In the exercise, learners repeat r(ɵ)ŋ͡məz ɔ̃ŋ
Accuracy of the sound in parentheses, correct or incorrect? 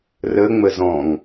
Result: incorrect